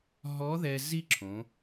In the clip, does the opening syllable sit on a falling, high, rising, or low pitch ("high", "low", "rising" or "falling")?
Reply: rising